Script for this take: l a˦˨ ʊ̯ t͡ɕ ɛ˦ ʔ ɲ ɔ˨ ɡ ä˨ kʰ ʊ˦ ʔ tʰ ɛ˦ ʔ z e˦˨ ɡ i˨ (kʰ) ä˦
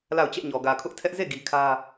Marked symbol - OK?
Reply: yes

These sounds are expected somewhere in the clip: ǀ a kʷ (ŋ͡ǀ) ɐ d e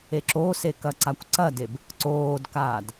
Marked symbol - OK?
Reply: no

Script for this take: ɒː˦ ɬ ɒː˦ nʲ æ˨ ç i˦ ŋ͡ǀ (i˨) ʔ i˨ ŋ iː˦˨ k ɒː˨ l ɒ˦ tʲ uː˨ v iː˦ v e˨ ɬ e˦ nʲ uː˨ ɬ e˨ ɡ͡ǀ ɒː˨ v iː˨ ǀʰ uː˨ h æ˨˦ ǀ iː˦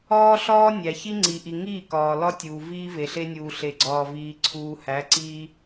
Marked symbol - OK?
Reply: yes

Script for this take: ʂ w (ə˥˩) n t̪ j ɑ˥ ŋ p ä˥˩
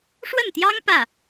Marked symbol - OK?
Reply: yes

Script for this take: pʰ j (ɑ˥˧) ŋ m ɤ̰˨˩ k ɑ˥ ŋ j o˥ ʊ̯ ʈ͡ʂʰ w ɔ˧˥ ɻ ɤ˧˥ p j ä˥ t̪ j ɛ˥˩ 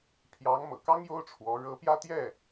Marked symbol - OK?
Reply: no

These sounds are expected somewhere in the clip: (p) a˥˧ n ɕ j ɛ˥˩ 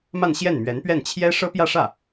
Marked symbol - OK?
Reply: no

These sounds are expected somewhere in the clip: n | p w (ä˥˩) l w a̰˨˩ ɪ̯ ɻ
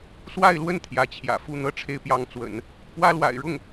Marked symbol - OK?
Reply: no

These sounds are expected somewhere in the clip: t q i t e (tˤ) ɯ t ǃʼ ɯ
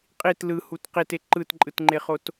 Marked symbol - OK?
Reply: no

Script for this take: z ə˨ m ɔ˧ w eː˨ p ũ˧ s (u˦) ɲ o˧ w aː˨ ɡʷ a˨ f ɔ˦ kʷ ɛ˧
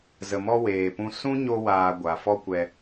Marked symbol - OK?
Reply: no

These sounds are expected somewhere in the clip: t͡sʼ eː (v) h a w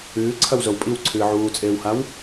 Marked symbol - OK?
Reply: no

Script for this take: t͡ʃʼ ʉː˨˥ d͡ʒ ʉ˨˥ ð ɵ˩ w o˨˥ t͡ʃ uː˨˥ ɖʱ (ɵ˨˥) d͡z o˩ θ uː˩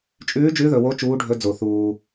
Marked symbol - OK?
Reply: yes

